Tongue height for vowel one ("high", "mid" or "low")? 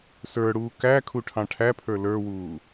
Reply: mid